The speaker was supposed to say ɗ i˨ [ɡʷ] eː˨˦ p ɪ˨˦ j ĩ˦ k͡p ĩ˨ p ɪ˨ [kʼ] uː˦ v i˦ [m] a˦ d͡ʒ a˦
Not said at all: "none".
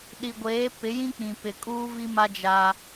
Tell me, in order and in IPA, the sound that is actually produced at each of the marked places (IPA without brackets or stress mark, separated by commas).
ɡʷ, kʼ, m